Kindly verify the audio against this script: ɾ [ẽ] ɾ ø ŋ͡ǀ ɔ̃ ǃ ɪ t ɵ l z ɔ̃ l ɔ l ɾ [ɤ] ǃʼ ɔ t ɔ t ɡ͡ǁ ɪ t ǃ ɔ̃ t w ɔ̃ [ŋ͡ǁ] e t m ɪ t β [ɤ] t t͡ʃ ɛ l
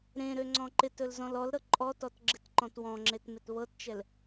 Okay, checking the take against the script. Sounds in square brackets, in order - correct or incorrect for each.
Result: correct, correct, correct, correct

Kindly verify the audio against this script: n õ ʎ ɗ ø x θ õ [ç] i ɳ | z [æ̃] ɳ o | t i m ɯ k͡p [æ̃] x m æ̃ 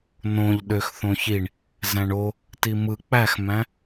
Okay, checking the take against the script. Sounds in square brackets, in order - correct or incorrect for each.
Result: correct, correct, incorrect: æ

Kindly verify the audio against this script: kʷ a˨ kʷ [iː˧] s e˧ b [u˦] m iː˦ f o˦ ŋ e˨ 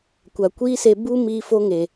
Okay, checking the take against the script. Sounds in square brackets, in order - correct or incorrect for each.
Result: incorrect: iː˦, correct

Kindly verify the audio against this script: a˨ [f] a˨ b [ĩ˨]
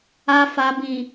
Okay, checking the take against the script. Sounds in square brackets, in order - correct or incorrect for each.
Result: correct, correct

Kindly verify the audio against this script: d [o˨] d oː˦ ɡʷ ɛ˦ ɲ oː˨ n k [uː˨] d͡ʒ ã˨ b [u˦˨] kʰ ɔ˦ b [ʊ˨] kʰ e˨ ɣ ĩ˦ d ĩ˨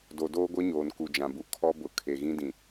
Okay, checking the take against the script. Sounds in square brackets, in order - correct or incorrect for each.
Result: correct, incorrect: u˨, incorrect: u˨, correct

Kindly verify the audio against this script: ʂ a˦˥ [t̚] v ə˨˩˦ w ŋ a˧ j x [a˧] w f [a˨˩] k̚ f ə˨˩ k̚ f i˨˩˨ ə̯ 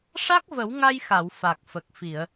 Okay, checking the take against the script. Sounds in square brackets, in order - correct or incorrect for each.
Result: incorrect: k̚, incorrect: a˨˩˨, correct

